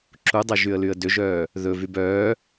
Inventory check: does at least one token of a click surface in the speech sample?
yes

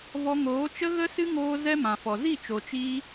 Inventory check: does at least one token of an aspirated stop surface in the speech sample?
no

